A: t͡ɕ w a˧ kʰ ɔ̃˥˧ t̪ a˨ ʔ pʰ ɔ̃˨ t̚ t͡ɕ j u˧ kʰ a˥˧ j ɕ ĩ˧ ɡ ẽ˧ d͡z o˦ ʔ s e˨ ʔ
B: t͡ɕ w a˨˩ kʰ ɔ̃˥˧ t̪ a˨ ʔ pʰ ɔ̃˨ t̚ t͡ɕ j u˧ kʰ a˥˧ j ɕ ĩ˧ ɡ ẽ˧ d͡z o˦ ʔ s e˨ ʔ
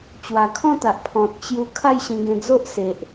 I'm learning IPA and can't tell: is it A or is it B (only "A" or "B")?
B